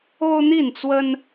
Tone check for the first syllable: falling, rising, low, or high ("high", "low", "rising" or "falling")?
high